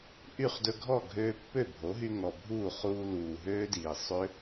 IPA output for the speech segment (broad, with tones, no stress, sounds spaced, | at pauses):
ʔ y˥˩ χ d ɵ˧ ɡʱ ɔ˥˩ ɡʱ øː˧ pː ø˥˩ bʱ o˩˥ ɦ y˧ ŋ ɔ˨˩ bʱ uː˥˩ χ uː˧ l uː˨˩ ɦ øː˦˥ d iː˨˩ sˤ ø˦˥